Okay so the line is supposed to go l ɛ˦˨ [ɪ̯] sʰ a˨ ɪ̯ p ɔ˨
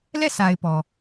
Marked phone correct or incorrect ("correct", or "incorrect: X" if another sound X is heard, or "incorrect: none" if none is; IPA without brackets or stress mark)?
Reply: incorrect: none